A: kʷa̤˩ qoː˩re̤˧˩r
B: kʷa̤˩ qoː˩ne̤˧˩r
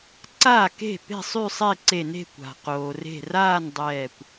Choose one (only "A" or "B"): A